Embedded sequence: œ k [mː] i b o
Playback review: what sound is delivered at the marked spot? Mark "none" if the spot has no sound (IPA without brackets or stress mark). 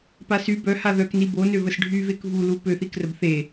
n